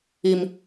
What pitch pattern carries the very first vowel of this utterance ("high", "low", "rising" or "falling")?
high